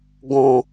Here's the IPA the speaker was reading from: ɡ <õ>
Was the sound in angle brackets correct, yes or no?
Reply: yes